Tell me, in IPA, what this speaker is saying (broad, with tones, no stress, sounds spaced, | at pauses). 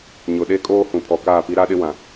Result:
ɲ ʊ˨ ɗ e˦ kʼ oː˦ h ũ˨ pʰ ɔ˨ k aː˦˨ p i˦ ɾ a˦ ɗ ɪ˦ w ã˨